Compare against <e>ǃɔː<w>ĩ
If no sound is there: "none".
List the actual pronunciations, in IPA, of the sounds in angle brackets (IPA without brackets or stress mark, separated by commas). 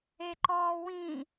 e, w